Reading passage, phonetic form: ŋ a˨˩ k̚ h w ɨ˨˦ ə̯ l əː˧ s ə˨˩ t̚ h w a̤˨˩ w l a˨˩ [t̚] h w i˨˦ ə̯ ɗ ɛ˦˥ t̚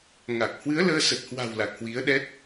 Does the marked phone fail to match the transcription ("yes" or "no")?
yes